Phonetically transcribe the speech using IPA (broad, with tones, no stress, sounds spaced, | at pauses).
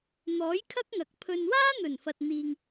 n̪ ɔː˨˥ j kʰ ɐ˥ k̚ ŋ ɐ˨ k̚ pʰ ɵ˧ n w aː˥ n̪ ɵ˨˩ n f ɐ˨ t̚ n̪ iː˨ ŋ